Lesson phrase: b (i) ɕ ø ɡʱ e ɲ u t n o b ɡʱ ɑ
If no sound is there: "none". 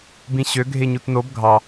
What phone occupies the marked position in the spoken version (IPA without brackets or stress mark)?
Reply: ĩ